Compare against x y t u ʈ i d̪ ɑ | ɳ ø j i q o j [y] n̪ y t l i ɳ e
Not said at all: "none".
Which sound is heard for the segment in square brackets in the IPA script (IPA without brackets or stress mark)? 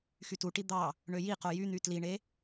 y